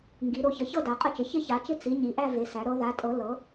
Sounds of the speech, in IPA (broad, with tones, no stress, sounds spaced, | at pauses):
ŋ ɡ i˩˧ ɾ o˩˧ ç ə˩˧ ç ɤ˥˧ d a˩˧ qʼ ə˥˧ t͡ʃ ɪ˩˧ ç ɪ˥˧ ç a˩˧ t͡ʃ ɪ˥˧ t͡s i˩˧ ɲ i˩˧ ʔ æ˥˧ v e˩˧ s æ˩˧ ɾ ɤ˩˧ ð a˩˧ tʼ ɤ˩˧ l ɤ˩˧